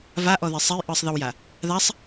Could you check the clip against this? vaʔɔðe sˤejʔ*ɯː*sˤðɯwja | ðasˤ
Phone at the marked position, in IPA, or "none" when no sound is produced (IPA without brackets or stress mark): ɯː